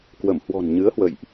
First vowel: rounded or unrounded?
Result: unrounded